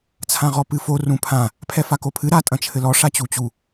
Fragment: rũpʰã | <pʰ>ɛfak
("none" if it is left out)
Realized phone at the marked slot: pʰ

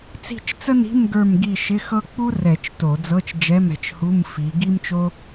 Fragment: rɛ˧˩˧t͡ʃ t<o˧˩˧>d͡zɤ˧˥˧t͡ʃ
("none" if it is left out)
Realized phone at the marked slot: o˧˩˧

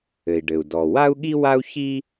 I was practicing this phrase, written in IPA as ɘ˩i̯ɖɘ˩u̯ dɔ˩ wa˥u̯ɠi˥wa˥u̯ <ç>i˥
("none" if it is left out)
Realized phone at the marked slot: ç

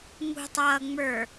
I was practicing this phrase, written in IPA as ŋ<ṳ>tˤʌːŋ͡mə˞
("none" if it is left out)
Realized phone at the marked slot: ṳ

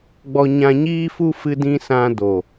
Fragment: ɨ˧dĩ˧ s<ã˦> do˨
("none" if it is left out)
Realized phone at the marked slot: ã˧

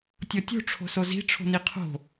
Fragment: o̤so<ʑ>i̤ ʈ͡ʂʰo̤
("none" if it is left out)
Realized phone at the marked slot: z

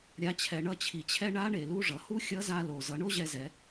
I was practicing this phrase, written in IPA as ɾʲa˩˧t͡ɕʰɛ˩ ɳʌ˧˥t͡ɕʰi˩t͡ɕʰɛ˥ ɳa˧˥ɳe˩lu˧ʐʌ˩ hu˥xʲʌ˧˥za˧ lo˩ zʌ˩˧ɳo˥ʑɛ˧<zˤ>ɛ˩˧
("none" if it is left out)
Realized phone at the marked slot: z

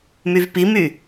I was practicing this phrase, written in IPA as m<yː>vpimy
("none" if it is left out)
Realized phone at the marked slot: y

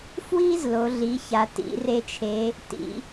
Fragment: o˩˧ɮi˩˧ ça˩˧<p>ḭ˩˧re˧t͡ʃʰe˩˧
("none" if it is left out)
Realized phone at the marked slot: t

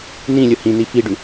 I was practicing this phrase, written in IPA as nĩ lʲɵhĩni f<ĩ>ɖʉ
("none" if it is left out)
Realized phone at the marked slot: i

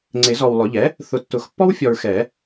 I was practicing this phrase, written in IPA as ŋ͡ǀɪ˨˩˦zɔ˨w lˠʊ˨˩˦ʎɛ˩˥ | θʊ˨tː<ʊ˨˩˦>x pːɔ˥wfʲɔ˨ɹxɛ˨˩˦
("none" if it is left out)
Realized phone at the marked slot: ʊ˨˩˦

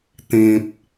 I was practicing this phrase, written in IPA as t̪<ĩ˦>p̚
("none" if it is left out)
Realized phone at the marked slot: ĩ˨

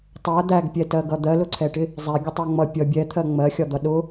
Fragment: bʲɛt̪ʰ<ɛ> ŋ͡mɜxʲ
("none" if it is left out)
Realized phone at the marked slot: ɜ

